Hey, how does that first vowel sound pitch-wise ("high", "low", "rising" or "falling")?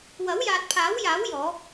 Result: rising